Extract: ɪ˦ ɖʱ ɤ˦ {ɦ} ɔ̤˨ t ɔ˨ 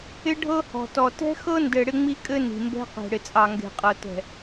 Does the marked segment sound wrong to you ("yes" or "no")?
yes